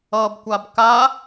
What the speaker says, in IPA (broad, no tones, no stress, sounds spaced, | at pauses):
ʌ b kʷ a b k a